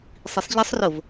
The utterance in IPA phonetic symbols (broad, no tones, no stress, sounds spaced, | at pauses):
sˤ i sˤ ʎ ɪ sˤ r ʊ v